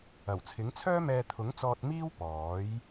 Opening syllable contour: low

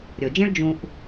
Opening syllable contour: low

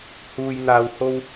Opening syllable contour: low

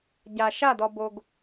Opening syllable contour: low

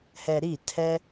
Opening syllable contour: low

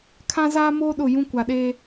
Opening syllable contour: high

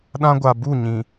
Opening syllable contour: high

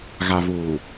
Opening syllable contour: low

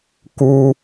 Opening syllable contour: high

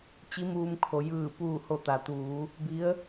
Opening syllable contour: rising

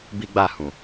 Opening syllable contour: high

